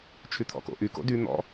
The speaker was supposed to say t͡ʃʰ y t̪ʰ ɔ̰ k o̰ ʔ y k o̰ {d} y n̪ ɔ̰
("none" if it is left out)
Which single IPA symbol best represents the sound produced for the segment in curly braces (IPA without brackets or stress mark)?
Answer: d